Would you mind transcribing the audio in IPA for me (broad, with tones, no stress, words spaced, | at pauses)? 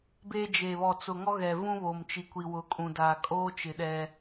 be˦ d͡ʒe˨βɔ˨t͡sʊ˨ ŋɔ˦ɣɛ˨ vũ˦βoː˨mt͡ʃi˨ kʷi˨wʊ˨˦kʼũ˨daː˨ kʼoː˦t͡ʃɪ˨ ɗɛ˦